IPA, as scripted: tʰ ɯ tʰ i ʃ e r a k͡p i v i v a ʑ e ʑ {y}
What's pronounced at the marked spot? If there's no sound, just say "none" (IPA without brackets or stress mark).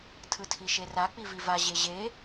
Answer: e